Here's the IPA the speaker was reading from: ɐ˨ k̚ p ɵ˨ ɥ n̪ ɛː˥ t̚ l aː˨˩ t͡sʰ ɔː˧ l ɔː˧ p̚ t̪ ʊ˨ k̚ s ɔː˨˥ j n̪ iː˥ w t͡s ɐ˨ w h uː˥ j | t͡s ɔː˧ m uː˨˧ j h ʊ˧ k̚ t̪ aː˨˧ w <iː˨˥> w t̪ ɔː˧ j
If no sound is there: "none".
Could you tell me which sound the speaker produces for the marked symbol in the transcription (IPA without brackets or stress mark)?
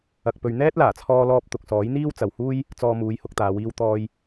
iː˧